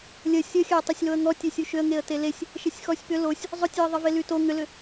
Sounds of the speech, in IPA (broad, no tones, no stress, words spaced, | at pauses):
lʲə sʲəxʲæ tˤesʲloə̯ŋɔtʲe sʲuʃʏə̯ŋeə̯ telesʲ | ʃesʲxɔsʲpʏ losʲ | zˤʊtʲeə̯ðˤə velyto ŋʏlʏ